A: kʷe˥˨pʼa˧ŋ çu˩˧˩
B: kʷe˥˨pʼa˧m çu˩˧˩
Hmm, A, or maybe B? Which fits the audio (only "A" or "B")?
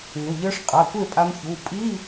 B